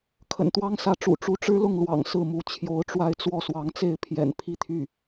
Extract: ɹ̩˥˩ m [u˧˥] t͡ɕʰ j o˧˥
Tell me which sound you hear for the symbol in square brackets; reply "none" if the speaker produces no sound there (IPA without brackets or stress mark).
u˧˥